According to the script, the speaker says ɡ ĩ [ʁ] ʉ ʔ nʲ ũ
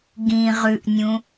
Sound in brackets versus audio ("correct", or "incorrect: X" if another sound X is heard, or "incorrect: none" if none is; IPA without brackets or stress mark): correct